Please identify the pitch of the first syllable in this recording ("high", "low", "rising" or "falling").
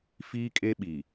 high